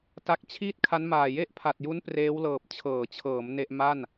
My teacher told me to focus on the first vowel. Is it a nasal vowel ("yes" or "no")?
no